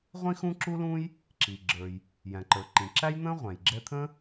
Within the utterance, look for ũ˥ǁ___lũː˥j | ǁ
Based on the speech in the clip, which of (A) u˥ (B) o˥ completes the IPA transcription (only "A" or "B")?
A